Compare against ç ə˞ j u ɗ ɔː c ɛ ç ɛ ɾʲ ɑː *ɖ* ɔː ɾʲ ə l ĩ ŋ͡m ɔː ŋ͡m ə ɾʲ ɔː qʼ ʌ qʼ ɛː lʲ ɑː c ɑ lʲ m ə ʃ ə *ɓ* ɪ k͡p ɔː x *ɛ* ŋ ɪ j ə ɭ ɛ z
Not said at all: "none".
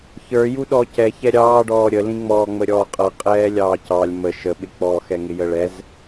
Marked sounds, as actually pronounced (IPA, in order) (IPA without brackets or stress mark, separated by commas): ɖ, ɓ, ɛ